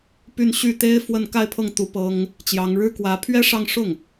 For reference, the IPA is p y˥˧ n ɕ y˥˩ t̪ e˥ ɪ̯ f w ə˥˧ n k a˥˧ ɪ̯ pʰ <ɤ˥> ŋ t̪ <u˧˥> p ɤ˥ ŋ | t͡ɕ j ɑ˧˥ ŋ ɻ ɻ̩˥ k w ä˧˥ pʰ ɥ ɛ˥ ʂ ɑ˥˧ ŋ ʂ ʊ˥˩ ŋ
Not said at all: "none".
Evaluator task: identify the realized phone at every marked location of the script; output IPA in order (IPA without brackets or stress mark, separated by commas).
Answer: ɤ˥˩, u˧˥